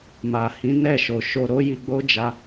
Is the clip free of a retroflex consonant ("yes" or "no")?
yes